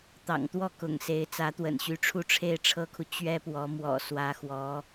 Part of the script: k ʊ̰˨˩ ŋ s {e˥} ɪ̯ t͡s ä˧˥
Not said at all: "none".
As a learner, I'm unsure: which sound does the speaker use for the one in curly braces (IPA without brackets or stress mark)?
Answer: e˧˥